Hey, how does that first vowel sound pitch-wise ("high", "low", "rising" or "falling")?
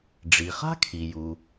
low